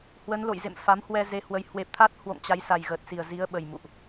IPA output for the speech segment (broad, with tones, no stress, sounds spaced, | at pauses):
h w ə˨˦ n l o̰˧˨ j z ḛ˧˨ m f a˨˦ m h w ɛ˧ z e˨˦ h w ə˨˦ j h w e˨˩ p̚ t̪ʰ a˦˥ t̚ h w o̰˧˨ ŋ t͡ɕ a˨˦ j s a˨˩ j ɣ əː˨˩ t̚ s i˨˩ ə̯ z i˨˦ ə̯ ɓ ə˨˩ j m ṵ˧˨ ʔ